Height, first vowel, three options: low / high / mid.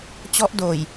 mid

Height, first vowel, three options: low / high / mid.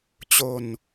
mid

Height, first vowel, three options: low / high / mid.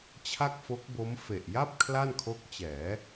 low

